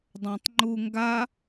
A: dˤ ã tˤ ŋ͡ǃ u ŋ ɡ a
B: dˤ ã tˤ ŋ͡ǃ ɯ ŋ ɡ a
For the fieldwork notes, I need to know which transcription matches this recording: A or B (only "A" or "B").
A